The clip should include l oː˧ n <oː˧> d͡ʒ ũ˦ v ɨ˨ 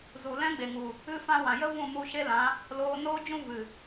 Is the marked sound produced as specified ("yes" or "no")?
no